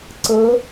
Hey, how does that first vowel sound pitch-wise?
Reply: rising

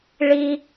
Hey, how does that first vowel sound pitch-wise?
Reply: high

